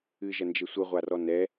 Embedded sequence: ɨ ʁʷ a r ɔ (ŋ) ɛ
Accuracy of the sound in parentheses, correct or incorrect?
incorrect